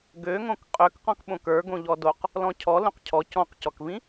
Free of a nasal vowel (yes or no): no